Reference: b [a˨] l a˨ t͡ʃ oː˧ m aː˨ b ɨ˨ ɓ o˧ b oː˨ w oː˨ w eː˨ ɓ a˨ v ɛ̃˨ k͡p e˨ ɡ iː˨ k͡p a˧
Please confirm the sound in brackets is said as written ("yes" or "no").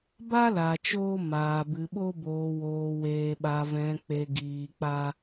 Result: no